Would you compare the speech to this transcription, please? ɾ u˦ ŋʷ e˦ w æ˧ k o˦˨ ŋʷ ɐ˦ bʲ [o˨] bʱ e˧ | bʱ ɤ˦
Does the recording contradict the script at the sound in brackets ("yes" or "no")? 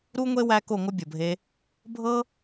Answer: no